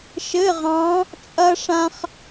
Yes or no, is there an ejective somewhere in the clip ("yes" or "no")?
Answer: yes